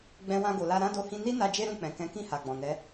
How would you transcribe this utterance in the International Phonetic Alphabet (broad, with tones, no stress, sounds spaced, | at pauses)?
ɡ͡b ɛ̃˧ w ã˧ ɡ o˨ l a˧ ɾ ã˦ d o˦˨ h ĩ˧ n i˦ n a˧ d͡ʒ e˦ ɾ ũ˦˨ k͡p ɛ̃˨ k ɛ̃˨˦ k ĩ˦˨ h a˨ ɡ͡b ɔ̃˨ n ɛ˨˦